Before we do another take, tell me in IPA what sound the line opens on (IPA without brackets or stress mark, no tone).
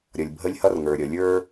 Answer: ɾʲ